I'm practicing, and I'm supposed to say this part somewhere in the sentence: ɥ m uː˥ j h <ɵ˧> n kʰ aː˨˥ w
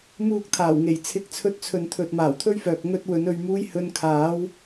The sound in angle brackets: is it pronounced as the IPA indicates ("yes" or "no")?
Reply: yes